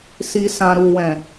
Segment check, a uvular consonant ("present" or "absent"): absent